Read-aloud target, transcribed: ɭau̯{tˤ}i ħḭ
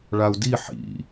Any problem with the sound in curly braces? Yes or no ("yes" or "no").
yes